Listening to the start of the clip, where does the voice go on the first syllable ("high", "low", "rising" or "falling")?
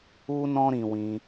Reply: high